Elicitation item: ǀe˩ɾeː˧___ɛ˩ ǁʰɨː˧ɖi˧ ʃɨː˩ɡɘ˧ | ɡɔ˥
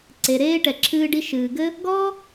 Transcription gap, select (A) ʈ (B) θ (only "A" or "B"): A